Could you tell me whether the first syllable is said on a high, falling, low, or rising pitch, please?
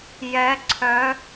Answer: rising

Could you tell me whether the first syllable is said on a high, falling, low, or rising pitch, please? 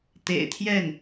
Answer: low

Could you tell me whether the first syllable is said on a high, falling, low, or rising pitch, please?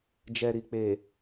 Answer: low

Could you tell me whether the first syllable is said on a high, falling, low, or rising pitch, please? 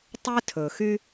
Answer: high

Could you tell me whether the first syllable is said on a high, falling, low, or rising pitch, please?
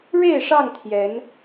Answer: falling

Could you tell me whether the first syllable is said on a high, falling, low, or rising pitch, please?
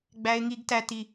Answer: high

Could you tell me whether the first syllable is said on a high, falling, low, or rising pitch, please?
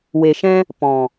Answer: low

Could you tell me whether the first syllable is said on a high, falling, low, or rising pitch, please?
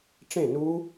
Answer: falling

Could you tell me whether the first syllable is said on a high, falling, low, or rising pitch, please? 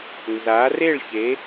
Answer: rising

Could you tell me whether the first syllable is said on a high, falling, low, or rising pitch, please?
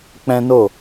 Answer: high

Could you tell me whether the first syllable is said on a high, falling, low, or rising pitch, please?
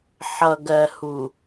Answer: low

